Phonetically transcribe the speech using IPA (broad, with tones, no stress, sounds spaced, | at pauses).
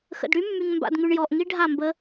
x ə̰˨ d ɽ y˦ mː y˨ ŋ m b a̰˨ d ŋ y˨ ɳ j ɔ˨ ʔ ŋ i˦ ɖʱ a˦˨ m b ə˦